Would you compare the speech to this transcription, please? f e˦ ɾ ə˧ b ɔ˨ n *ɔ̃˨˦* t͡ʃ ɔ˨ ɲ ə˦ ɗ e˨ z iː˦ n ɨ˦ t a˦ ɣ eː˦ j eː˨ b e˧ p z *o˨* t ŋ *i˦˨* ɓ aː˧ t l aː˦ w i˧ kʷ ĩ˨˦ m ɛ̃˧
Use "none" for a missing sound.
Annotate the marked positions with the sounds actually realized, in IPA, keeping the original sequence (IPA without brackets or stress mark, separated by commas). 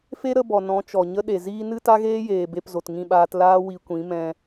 ɔ̃˨˦, o˨, ĩ˦˨